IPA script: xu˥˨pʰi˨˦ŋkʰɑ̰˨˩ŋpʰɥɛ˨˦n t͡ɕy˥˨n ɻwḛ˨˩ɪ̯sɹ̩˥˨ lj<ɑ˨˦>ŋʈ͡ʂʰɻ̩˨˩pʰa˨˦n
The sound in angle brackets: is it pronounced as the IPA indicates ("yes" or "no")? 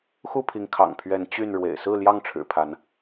no